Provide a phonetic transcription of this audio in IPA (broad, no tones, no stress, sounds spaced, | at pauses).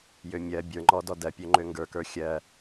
j ø mʲ ɜ bʲ ə˞ ŋ͡ǃ ɔ d ɔ d ɜ pʲ ø ŋ͡ǃ ø ŋ ɡ ə˞ k ə˞ xʲ ɜ